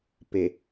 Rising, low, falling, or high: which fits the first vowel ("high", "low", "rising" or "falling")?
low